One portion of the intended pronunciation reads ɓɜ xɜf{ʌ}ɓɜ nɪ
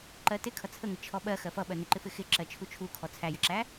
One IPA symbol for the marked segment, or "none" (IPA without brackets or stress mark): ʌ